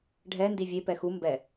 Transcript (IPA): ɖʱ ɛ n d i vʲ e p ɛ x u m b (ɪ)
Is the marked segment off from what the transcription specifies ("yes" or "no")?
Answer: yes